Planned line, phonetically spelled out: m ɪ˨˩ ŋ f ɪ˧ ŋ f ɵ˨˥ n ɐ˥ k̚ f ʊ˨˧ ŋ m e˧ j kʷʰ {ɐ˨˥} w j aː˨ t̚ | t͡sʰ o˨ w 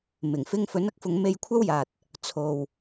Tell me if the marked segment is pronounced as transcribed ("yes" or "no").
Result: no